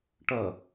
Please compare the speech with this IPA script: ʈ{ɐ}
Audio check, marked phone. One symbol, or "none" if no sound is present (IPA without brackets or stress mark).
ɐ